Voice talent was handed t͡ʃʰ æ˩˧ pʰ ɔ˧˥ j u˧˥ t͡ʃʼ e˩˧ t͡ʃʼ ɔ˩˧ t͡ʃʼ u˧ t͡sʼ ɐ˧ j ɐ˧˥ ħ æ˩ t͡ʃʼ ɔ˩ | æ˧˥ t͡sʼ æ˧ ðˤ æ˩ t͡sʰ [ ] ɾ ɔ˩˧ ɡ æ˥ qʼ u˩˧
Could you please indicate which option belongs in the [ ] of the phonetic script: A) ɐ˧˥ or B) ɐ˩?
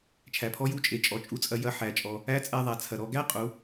B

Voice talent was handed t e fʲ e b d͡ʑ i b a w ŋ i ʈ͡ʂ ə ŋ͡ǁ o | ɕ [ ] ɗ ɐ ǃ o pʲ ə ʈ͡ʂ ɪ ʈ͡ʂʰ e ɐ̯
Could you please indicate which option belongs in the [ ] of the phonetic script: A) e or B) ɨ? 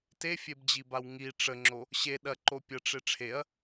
A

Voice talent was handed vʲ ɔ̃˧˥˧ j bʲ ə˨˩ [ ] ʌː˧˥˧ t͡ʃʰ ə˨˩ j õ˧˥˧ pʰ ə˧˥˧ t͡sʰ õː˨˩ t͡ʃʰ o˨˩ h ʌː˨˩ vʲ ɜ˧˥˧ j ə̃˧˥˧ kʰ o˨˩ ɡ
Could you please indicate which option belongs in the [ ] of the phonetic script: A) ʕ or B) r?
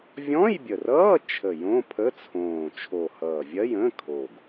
B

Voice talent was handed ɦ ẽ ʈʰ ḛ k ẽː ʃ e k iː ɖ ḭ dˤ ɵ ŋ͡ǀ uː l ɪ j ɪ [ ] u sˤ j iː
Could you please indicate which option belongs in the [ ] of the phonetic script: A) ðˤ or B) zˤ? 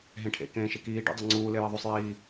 A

